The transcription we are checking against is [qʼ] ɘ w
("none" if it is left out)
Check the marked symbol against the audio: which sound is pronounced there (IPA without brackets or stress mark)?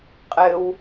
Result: qʼ